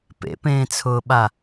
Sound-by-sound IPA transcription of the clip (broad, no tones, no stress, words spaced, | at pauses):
pḛpẽːt͡sʰʊːɓa